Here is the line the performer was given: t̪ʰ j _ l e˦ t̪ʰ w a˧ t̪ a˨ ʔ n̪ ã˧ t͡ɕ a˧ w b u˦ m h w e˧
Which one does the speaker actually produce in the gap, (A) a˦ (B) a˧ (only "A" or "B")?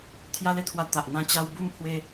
A